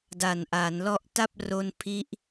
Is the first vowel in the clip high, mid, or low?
low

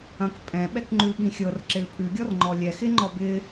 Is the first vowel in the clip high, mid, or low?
low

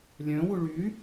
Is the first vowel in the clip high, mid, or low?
mid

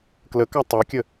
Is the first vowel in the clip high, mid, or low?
mid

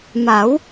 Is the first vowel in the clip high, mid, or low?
low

